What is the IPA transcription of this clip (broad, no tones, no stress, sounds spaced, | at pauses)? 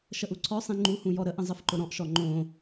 ʃ ə ʔ u ǀʰ ɔ sˤ ĩ ŋ͡ǃ u h ũ j ɔ ɾ ə ʔ ə̃ zˤ ə f ǃ ʊ ɾ ɔ̃ ʔ ʃ ɔ ŋ͡ǃ õ